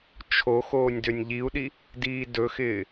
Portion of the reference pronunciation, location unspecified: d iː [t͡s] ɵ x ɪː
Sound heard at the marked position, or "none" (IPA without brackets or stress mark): d